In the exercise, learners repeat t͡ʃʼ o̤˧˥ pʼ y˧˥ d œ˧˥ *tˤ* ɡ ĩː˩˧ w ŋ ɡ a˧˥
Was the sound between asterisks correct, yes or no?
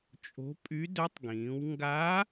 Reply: yes